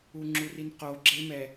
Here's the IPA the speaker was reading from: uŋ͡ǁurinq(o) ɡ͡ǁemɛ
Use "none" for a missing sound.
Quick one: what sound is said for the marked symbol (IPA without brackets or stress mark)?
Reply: o